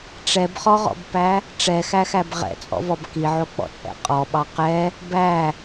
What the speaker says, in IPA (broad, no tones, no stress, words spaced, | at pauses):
ʈ͡ʂɛbχɔʁɔ̰bpæ | ʈ͡ʂɛxæxæb ʁɛ̰t͡sʼɔ̰vɔb kiʕok͡pɔ̰t͡sʼɛ̰ qʼɔɓɑ qɛ | bæ